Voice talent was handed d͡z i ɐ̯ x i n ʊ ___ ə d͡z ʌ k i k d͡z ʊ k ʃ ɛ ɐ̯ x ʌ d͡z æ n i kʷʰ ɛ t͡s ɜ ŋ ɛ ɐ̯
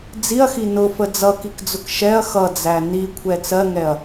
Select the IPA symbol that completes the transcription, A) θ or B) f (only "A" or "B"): B